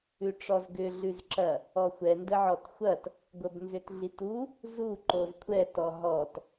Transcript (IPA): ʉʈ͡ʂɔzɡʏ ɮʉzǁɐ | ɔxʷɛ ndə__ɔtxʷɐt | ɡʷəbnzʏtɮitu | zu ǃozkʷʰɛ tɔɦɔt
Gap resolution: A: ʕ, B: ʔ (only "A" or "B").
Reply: A